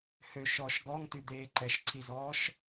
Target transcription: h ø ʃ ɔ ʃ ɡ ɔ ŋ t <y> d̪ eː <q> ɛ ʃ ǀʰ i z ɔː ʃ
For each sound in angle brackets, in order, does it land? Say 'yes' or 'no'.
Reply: yes, no

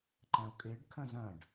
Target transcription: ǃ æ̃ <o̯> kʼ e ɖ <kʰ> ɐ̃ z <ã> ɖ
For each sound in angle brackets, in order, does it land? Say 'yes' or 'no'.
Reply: yes, yes, no

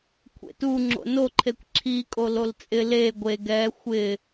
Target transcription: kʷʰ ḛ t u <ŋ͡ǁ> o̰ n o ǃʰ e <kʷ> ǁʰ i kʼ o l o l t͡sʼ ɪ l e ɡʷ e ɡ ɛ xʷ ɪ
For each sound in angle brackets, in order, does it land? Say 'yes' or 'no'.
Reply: yes, yes

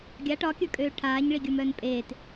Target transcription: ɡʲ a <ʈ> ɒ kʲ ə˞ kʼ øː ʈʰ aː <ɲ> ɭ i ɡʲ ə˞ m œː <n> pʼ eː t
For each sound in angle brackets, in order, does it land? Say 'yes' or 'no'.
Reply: yes, yes, yes

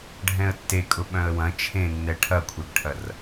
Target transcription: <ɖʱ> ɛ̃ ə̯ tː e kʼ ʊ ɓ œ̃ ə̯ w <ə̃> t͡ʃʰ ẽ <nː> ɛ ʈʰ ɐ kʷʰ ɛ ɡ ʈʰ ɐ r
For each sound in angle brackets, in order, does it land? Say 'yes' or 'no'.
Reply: yes, no, yes

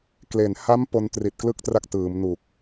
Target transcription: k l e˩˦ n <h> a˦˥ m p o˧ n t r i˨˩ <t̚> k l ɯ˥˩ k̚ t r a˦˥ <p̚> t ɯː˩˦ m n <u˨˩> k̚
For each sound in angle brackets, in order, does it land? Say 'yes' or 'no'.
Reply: yes, yes, no, yes

